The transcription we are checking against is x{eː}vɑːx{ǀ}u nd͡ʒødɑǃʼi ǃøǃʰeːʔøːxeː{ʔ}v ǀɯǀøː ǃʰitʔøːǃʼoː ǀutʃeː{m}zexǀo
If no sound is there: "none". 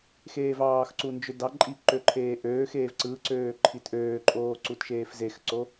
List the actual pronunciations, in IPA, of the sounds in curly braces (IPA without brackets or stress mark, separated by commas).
eː, ǀ, none, f